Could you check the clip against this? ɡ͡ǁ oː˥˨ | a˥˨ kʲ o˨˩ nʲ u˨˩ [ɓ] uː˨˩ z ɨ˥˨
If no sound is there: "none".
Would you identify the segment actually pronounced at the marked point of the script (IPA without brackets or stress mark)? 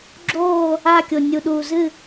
ɗ